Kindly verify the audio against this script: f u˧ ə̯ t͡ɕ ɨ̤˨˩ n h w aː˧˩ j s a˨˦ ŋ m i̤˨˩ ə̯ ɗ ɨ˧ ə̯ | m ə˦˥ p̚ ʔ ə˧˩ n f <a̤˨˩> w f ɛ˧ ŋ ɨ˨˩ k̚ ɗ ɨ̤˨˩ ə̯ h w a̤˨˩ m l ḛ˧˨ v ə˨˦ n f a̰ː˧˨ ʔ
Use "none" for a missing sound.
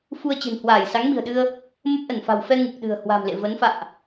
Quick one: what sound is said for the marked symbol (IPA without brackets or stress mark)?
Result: a̤˨˩